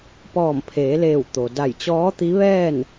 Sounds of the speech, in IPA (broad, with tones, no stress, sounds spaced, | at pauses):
p ɔː˧˩ m pʰ eː˩˧ l eː˧˩ w t̪ o˩ d a˧˩ j t͡ɕ ɔː˧˥ t̪ i˧˥ ʋ ɛː˥˨ n